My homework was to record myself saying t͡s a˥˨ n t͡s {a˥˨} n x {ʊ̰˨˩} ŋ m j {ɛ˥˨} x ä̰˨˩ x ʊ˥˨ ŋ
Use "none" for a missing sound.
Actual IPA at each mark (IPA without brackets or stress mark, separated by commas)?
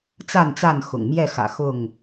a˥˨, ʊ̰˨˩, ɛ˥˨